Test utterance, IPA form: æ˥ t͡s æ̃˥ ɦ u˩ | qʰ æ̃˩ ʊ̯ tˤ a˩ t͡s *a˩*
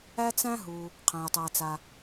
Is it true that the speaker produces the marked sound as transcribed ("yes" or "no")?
yes